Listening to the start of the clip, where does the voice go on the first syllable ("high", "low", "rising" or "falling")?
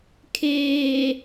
low